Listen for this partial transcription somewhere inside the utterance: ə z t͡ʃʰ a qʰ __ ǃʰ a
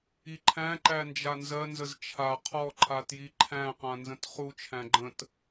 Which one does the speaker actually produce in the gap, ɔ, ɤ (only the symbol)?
ɔ